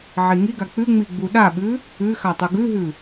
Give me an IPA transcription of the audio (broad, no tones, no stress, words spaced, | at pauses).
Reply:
ʕiŋiɡa k͡pʉŋ͡mi ɡ͡buɗaɓʉ | ʉxa tˤuɡʉɦʉ